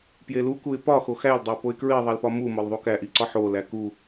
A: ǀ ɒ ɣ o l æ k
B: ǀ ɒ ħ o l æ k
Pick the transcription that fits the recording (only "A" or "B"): B